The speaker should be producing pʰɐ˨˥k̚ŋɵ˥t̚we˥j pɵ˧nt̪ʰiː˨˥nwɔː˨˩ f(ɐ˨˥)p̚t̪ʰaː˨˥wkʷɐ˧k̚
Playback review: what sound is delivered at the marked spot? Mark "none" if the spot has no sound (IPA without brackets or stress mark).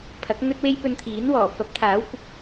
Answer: ɐ˨˥